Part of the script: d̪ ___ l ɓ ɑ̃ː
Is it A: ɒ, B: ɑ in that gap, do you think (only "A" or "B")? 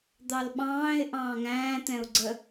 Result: B